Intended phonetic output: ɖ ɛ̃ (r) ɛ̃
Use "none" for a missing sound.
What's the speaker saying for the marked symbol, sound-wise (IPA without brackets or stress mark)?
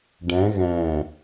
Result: ɣ